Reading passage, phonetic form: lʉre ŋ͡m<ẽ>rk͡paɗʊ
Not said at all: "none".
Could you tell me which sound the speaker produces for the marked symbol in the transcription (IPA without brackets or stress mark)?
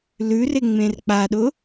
ẽ